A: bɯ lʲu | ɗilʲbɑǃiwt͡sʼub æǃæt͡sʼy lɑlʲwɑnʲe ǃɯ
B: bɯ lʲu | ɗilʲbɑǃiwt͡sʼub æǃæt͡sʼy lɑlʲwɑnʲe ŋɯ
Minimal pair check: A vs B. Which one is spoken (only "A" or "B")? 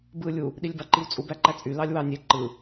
A